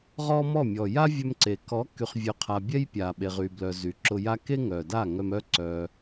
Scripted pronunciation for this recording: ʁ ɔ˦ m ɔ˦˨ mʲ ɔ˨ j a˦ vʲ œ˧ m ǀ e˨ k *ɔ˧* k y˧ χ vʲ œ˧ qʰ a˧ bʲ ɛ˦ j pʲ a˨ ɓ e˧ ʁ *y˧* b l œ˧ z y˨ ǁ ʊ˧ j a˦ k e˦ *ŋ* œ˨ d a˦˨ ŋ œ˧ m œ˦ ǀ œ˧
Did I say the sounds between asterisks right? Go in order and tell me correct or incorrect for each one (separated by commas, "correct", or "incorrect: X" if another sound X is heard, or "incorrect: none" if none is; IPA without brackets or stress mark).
incorrect: ɔ˨˦, correct, correct